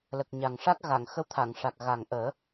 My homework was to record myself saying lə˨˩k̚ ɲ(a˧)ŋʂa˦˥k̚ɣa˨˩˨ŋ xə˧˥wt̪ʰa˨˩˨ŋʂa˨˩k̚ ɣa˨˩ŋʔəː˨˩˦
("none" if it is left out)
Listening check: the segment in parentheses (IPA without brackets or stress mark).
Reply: a˨˩